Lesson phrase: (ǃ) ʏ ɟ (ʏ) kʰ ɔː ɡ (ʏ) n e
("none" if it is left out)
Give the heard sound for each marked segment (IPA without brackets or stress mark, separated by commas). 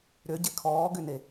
ɾ, ɪ, ʏ